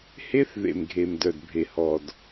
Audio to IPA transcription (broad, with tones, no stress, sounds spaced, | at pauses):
h e˦ θ ð ḛ˨ m ɡʱ e˨ m d œ˨ d bʱ e˨ h ɔ˨ d